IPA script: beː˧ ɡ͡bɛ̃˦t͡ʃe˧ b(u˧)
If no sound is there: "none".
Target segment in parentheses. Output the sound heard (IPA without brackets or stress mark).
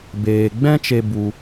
u˧